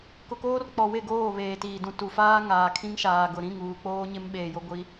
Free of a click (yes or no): yes